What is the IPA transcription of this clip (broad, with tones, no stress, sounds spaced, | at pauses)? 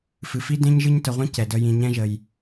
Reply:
f ɨ˨ f i˦ d ẽ˦ ɲ ʒ ɨ˦ ɲ t ə˨ ʁʷ ĩ˦ c ɛ˨ d ə˦ j ĩ˨ ɲ ɛ̃˦ ʒ ə˨ j